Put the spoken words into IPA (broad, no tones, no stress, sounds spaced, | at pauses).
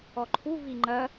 ɔ ǃʰ u v i ŋ͡ǃ ɐ